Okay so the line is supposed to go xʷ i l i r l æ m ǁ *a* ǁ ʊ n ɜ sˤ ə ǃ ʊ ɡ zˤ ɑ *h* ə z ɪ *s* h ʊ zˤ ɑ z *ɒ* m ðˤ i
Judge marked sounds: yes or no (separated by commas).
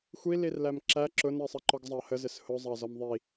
no, yes, yes, yes